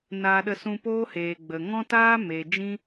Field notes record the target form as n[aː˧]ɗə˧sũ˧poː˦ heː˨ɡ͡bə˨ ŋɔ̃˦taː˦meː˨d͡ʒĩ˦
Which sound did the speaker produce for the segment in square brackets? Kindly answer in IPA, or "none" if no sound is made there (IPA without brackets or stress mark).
aː˧